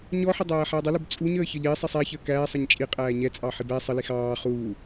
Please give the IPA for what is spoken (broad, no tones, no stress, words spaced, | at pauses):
ɲɔħɪdˤæː ħædˤəlʊb t͡sʼuɲəːçʌʎ ɪːsˤisˤ æ çəːkæːsˤʌɲ t͡ʃʼi qʼæːɲɛt͡sʼɑ ħibæ sˤəlix ɑː χuː